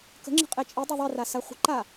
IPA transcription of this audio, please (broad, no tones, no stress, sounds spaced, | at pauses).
k ə̤ ŋ͡ǁ ə̤ qʼ e t͡ʃʼ i dˤ e ðˤ i r a s a χʷ ə̤ ǃ a